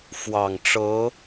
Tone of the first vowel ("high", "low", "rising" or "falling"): low